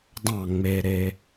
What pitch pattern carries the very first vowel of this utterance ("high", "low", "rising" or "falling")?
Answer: falling